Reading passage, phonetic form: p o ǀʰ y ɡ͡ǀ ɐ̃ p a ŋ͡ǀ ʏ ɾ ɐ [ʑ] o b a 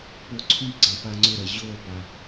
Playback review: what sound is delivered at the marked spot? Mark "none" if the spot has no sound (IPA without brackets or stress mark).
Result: ʑ